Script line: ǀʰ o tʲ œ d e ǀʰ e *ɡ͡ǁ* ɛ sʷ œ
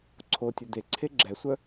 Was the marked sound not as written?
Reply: no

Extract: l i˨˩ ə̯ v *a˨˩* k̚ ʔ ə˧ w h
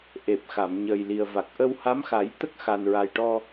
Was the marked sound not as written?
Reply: no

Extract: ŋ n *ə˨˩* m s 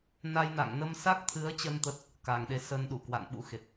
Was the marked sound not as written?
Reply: yes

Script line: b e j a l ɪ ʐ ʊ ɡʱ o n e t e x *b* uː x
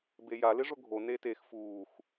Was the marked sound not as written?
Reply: yes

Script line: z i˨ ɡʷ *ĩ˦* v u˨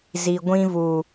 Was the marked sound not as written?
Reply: no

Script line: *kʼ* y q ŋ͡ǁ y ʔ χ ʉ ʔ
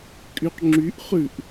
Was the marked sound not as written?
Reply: no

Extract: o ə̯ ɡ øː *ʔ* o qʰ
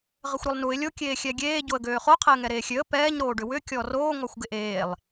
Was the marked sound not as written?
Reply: yes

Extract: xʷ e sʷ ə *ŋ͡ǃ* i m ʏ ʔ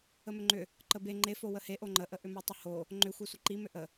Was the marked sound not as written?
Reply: yes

